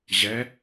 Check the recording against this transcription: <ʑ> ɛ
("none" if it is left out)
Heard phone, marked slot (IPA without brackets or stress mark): ʑ